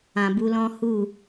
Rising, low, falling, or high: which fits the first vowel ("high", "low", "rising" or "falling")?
low